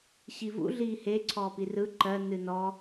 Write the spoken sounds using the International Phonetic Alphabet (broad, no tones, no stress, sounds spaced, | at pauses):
ɕ i v ṵ ɮ iː h e ǀʰ ɔː p i r ɯ ǃ ɜ n ɨ n ɔ